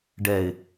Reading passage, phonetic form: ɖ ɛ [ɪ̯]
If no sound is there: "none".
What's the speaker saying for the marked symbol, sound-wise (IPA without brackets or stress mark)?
ɪ̯